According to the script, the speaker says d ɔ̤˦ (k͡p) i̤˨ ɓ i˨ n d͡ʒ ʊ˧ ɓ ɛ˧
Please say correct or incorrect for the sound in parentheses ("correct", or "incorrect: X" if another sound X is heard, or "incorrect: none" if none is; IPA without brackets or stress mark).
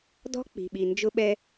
correct